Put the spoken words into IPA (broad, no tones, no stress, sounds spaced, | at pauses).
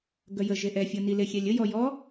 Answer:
ɡ œ j ə ʒ e ʔ ɛ fʲ ɤ n i l e xʲ ɛ lʲ ə j ɔ j ɔ